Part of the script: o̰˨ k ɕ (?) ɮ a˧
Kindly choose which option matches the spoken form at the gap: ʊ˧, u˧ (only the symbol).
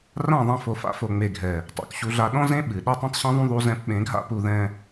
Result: u˧